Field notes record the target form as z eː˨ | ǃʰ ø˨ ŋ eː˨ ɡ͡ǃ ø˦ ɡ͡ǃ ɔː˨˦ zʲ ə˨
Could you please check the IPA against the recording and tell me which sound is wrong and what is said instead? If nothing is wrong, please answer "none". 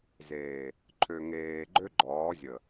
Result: none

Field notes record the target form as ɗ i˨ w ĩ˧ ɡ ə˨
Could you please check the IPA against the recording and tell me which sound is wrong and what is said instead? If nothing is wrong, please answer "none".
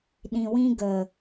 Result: i˨ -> ĩ˨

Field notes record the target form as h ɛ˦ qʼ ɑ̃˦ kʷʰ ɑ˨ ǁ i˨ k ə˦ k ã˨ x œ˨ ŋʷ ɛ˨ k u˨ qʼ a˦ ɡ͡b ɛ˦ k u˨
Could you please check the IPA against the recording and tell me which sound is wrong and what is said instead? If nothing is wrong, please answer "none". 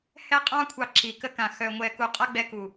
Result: none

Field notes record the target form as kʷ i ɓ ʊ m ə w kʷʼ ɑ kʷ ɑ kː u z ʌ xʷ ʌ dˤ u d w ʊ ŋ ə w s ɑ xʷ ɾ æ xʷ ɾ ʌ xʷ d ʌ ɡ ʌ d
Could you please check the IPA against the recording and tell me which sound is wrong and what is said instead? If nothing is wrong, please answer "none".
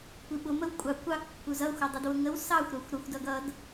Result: none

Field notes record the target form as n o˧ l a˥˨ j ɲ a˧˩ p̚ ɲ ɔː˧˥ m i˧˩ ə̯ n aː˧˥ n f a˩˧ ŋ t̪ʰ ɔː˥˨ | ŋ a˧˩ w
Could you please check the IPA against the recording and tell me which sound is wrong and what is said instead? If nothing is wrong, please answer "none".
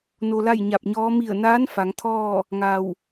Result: none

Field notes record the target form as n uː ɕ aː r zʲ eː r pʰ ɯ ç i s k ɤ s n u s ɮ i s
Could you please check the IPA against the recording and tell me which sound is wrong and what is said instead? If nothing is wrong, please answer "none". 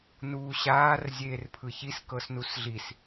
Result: none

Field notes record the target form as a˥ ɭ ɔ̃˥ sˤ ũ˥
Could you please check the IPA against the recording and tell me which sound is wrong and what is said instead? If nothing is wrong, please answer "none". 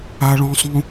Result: none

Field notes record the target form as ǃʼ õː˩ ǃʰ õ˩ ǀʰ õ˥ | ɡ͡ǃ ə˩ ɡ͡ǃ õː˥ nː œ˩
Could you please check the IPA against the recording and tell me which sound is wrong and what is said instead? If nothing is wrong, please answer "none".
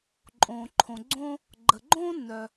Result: ǀʰ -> ɡ͡ǀ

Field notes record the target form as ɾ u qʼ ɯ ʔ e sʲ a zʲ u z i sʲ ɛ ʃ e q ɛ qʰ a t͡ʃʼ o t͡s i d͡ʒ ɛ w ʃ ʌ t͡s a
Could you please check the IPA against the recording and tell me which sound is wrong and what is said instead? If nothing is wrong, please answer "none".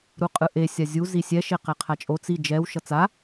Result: none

